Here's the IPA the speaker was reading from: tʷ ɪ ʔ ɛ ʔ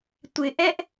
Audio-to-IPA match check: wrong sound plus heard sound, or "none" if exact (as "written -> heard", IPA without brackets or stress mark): none